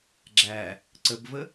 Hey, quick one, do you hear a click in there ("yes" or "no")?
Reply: yes